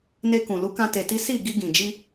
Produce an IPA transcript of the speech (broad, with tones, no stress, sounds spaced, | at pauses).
n e˧ k ũ˨ l u˨˦ k ã˧ t e˧ t i˦ s i˦˨ ɡ i˧ ɡ ĩ˨ d͡ʒ i˧